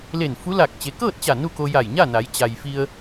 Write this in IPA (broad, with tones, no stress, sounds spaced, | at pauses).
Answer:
l e˧˩ n f u˧˥ l a˧˩ k̚ t͡ɕ e˩˧ k ɤː˥˨ t̚ t͡ɕ a˧˩ n u˥˨ k o˧ j a˧˩ j ɲ a˥˨ n a˩˧ j t͡ɕ a˩ j f i˧ ə̯